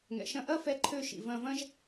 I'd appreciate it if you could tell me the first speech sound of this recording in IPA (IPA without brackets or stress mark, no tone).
ŋ